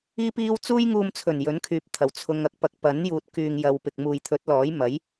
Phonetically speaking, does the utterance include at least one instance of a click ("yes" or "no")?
no